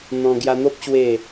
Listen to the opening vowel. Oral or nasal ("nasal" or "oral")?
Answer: nasal